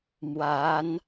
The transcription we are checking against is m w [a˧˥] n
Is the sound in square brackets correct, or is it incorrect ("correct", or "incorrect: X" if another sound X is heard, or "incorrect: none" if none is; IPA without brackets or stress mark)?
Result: correct